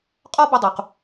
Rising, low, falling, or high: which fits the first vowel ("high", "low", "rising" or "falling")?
high